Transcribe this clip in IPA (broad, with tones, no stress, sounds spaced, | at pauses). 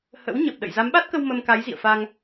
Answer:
h ə̰˧˥ w ɲ ə˨˩ p̚ ɗ ə̰˧˨ j z a˨˦ m ɓ a˦˥ t̚ k ə˧ w m ə˧ m k a˨˦ j z ḭ˧˨ ə̯ f a˧ ŋ